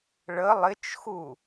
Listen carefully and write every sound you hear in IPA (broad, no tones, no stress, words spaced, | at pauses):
ɭə lˠɪt͡ʃxu